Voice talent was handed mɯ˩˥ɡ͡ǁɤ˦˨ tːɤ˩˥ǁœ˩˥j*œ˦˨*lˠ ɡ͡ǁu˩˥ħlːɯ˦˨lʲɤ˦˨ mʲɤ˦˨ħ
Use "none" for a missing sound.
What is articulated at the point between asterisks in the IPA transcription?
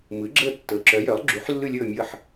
œ˩˥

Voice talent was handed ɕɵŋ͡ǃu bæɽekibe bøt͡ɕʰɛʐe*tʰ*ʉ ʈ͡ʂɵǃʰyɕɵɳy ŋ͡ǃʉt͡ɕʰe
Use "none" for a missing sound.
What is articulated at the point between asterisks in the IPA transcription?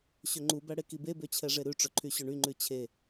ɾ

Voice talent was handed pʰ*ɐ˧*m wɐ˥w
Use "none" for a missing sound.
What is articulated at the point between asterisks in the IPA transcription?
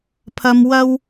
ɐ˧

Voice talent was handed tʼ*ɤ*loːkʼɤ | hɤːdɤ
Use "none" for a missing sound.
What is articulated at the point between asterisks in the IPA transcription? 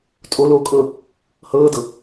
o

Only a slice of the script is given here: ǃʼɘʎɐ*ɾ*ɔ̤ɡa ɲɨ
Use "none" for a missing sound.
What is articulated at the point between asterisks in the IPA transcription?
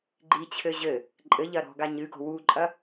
ɾ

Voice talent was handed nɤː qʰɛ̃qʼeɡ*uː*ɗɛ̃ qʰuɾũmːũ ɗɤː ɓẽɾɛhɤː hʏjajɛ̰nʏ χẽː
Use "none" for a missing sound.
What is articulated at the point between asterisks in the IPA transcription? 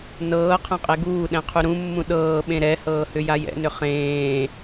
uː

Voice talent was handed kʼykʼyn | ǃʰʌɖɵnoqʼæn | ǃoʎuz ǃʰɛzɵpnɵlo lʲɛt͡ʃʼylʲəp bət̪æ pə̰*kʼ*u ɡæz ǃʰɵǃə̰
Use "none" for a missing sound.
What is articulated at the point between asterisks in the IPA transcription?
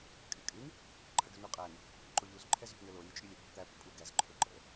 pʼ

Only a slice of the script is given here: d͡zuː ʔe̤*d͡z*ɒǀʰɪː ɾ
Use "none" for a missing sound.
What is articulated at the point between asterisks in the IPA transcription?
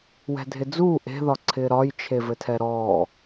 ð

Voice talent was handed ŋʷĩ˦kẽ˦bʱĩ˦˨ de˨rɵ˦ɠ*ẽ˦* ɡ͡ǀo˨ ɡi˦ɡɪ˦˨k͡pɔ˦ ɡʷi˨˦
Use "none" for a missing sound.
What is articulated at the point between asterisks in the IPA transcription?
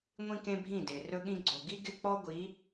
ĩ˦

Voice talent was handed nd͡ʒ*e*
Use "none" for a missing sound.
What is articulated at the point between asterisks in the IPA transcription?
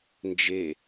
e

